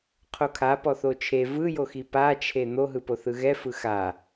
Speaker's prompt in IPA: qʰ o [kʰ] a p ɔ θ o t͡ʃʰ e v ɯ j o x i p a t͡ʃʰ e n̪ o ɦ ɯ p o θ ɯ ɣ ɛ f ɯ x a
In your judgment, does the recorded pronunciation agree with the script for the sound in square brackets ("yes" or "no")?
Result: yes